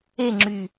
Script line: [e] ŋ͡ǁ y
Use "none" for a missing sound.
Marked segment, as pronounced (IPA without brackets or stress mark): e